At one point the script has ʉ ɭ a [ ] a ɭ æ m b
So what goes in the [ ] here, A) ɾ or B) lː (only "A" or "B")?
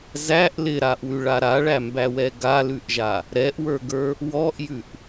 A